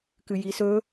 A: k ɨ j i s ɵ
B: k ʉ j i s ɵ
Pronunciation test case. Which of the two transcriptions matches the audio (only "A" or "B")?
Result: A